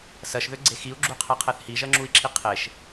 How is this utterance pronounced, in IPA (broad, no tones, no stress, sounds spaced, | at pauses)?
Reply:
s ɜ ʃ ð ø ɡ͡ǀ e x i u̯ ɡ͡ǁ u qʰ ɛ qʰ ɛ θ h i ʒ ɜ ŋ͡ǁ u i̯ ǁʰ i qʰ e ʃ